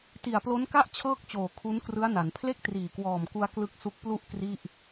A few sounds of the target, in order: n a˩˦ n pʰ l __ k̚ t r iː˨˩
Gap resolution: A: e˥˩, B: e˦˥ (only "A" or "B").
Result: A